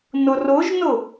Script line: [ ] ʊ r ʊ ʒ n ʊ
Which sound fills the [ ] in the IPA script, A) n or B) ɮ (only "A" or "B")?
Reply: A